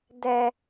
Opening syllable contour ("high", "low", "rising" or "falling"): high